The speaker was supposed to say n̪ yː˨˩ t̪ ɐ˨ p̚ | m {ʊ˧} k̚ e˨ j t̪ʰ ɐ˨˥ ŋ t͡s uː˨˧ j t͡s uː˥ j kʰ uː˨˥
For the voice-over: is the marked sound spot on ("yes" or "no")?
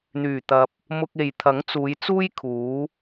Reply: yes